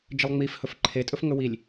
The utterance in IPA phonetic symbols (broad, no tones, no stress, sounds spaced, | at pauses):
d͡ʒ ə lˠ ŋ͡m i f h ɵ f ǃʰ e tʼ ɵ f ŋ ɵ w i lʲ